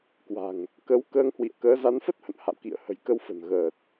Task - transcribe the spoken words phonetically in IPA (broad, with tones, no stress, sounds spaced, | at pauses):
k w a̤˨˩ ŋ | k ə˨˦ w k əː˧ ŋ h w ḭ˧˨ ə̯ k əː˨˦ z a˨˦ n f ə˦˥ t̚ h ə̰˧˨ n h a̰˧˨ w k ḭ˧˨ ə̯ h ə̤˨˩ j k ə˧ w f ə̤˨˩ n ɣ əː˨˩ t̚